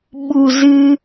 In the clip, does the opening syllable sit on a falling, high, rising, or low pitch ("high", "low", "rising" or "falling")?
low